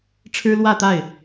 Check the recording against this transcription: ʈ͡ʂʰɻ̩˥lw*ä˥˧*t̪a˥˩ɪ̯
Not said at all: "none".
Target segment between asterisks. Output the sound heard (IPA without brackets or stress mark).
ä˥˧